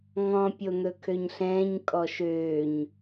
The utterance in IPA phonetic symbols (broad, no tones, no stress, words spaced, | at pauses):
ŋɔ̃pʲon̪ɵ kʰøɲɬɛ̃ːɲ kʼɔʃøːɲ